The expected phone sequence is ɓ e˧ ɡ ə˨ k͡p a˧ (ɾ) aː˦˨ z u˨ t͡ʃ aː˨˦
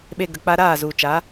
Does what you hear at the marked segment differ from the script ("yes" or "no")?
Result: no